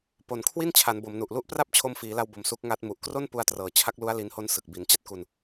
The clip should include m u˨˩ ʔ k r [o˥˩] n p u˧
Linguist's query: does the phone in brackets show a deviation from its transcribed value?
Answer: no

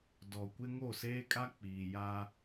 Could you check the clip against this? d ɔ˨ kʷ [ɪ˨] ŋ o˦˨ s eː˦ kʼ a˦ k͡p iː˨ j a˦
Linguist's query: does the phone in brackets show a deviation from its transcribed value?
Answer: yes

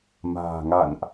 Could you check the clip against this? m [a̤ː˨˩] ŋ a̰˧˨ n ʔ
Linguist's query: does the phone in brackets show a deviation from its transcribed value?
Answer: no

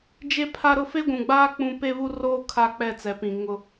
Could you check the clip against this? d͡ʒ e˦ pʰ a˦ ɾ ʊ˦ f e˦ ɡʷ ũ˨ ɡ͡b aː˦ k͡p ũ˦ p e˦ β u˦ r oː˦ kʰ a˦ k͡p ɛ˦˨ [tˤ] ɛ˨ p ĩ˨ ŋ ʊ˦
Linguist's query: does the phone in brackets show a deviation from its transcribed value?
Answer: yes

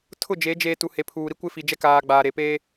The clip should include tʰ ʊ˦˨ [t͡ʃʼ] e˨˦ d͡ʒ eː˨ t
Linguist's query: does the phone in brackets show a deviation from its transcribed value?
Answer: yes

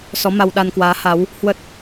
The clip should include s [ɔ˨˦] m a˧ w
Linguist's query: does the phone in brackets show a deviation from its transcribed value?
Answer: no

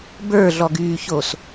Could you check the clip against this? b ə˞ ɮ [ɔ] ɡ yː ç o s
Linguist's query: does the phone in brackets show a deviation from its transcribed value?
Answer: no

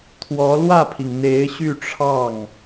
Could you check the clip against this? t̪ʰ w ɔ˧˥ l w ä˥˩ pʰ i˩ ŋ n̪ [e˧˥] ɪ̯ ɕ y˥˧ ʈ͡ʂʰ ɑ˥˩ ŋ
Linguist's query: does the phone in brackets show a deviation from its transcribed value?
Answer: no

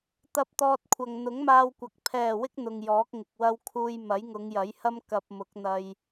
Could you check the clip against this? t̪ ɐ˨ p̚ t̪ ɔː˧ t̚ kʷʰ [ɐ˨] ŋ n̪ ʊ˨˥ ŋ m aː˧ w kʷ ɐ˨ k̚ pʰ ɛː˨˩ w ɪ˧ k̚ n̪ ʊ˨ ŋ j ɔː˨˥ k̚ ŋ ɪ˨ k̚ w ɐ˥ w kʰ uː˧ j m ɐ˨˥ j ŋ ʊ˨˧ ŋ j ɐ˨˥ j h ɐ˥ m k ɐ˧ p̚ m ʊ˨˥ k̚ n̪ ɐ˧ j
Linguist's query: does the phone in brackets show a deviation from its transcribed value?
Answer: no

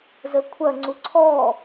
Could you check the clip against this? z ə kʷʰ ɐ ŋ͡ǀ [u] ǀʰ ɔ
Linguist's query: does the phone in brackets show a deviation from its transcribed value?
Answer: no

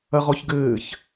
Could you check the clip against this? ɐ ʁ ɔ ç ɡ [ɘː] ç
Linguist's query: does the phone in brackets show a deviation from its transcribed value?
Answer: no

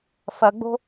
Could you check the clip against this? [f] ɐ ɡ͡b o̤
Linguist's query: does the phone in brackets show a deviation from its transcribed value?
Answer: no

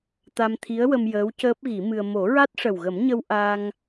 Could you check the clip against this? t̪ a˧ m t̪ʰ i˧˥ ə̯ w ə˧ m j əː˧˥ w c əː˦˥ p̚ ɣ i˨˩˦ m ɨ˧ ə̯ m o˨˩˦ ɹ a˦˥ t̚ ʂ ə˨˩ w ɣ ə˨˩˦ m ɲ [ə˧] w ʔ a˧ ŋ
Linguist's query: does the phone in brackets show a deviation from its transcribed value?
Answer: no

